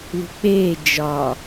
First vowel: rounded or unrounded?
rounded